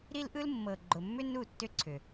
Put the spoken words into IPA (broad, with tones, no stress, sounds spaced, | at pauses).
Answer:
ɾ i˦ l ʔ ɯ˦ l mː ɤ˨ ɡ͡ǃ ʊ˨ mː ʏ˦ n u˦˨ tː ʏ˦ ǀʰ ʏ˨